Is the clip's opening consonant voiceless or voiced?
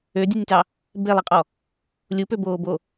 voiced